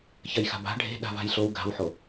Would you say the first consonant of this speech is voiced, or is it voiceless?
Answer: voiceless